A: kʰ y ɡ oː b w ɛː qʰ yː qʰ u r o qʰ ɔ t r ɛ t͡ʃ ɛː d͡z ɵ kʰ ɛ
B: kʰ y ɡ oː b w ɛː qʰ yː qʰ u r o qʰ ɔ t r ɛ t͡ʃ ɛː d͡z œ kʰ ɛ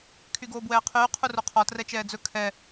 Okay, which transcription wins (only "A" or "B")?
A